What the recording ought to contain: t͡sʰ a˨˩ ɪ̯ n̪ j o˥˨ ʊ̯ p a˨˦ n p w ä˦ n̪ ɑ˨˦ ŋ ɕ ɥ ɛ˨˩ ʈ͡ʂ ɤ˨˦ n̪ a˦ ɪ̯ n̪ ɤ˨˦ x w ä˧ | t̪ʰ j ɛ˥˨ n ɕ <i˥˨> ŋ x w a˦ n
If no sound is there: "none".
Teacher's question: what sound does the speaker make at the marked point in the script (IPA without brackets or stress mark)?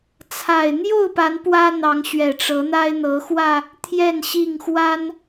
i˥˨